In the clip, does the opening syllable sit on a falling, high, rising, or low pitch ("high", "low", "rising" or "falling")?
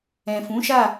low